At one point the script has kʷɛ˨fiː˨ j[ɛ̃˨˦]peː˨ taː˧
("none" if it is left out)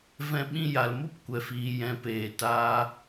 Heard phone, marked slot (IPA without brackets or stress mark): ɛ̃˨˦